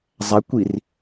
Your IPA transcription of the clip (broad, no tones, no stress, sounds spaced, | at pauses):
zˤ æ kʷ i r